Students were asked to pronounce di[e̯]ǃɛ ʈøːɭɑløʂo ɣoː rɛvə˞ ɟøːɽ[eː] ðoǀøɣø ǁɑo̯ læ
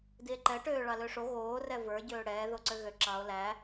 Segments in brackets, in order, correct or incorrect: correct, incorrect

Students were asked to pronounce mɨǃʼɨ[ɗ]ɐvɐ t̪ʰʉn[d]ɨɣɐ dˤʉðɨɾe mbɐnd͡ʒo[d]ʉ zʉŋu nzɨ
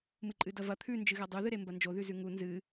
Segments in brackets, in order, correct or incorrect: incorrect, incorrect, incorrect

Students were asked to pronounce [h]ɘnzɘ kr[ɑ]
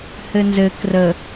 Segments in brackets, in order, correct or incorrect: correct, incorrect

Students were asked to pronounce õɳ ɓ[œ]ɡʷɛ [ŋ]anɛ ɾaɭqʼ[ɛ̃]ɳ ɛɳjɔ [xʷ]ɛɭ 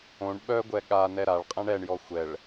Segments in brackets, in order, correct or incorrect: correct, incorrect, correct, correct

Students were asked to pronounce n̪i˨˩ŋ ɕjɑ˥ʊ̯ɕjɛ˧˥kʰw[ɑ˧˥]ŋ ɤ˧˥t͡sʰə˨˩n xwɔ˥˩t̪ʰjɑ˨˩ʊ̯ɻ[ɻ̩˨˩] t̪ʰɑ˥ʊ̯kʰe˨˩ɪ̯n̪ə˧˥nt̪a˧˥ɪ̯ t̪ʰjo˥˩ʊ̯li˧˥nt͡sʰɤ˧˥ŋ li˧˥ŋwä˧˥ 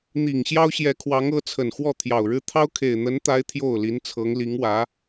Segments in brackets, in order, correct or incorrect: correct, incorrect

